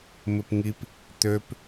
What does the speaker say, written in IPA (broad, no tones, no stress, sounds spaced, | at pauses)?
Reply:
m ɪ p ŋ i p | t̪ ø p